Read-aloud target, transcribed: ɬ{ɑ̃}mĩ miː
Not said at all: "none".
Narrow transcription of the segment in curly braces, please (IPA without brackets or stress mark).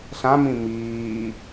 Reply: ã